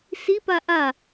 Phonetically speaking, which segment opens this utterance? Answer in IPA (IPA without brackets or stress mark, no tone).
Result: s